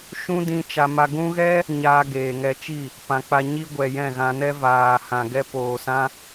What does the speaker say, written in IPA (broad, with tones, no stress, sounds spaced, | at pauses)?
ʃ ũ˦ d ĩ˧ t͡ʃ a˧ m a˧ ɡ ũ˦ ɣ ɛ˦ | ɲ aː˧ ɡ eː˨ ŋ ɛ˧ t͡ʃ i˦˨ | p ã˧ k͡p a˧ ɲ i˦ ɡʷ ɛ˨ j ɛ̃˦˨ ɣ ã˧ n ɛ˦ v aː˨ h ã˨ ɡ ɛ˦ p oː˨ s ã˦